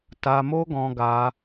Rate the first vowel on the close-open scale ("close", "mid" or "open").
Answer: open